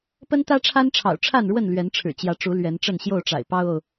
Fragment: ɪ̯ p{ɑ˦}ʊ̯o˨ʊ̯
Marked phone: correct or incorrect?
correct